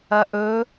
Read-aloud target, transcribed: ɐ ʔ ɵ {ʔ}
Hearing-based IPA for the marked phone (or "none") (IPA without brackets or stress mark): none